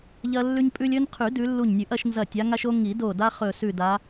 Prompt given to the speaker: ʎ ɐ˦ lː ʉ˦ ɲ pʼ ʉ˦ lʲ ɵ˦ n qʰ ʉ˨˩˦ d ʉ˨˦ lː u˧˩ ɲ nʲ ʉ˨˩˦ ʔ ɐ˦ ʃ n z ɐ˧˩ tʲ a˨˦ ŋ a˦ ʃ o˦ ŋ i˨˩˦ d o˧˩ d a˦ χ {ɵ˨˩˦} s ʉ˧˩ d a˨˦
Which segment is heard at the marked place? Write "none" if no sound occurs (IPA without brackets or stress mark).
ɵ˧˩